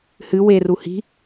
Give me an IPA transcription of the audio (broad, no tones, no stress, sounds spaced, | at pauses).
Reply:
h ɨ w e r u h i̤